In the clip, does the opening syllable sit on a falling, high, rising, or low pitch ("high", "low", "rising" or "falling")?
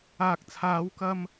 low